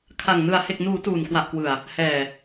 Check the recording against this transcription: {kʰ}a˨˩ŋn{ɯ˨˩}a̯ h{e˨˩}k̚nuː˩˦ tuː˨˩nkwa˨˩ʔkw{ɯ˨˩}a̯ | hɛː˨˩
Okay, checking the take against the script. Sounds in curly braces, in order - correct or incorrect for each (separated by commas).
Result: correct, correct, correct, correct